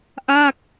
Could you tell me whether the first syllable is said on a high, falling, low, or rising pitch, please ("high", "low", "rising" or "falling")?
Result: falling